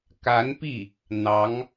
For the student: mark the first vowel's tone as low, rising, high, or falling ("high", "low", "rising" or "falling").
rising